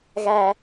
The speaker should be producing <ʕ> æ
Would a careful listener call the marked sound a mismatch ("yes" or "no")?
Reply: yes